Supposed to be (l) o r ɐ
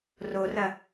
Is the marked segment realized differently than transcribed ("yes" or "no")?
yes